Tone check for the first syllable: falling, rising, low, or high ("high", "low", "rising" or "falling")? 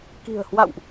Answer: low